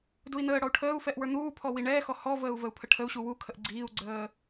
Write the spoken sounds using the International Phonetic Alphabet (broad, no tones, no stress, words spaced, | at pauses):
dui̯n̪əːɽɔu̯ ʈʰəːu̯fɛʔ wə˞n̪uːpʰɔ wiɳɛːxɔ hɔvəːu̯ vəu̯pʰəʈʰəu̯ɕu wukʰəʔ ɡ͡ǀiːu̯ɡ͡ǀəː